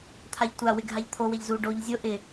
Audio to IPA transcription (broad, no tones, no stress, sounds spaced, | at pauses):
t̪ʰ a ʎ tʷ a w ɪ ɡʱ a ʎ t̪ʰ o w e ʎ z u ɖ o ʎ zʲ o ʔ ɪ